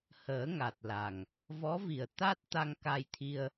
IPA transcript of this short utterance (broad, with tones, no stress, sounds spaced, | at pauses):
h əː˨˩˦ ŋ a˨˩ t̚ l a˨˩ ŋ | v ɔ˧˥ v i˨˩ ə̯ t̪ a˦˥ t̚ t̪ a˧ ŋ k a˧ j t̪ʰ i˧ ə̯